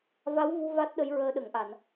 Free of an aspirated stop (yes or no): yes